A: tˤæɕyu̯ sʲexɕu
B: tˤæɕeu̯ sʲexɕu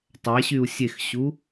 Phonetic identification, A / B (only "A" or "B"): A